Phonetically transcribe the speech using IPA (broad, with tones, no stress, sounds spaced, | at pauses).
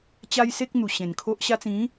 t͡ɕ a˦ j s e˦ k̚ n̪ u˨˩ ɕ ẽ˨˩ n kʰ o˦ ʔ ɕ a˧ t͡s ĩ˨˦